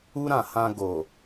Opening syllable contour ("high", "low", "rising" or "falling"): high